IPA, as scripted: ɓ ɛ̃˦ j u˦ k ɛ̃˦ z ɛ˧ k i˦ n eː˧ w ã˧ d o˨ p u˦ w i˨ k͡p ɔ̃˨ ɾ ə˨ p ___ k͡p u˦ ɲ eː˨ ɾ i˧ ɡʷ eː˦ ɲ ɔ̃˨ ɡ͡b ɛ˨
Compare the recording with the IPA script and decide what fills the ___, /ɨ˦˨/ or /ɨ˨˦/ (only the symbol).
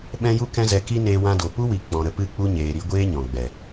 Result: ɨ˦˨